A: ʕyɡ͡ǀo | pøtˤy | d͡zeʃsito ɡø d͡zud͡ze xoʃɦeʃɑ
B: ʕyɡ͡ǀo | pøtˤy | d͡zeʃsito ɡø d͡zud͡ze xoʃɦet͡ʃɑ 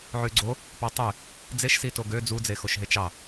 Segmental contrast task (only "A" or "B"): B